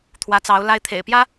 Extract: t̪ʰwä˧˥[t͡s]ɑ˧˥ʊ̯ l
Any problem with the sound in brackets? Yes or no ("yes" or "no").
no